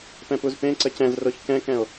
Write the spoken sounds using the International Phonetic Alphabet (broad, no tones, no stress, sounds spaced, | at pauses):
p ɛ̃ p u z p ẽ ǀ ə c ɛ̃ z r o ç k ɛ̃ k ɛ̃ o̯